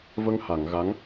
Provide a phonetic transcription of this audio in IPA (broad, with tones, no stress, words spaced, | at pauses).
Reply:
və˧ŋha˨˩˨ŋ ɣa˧˥ŋ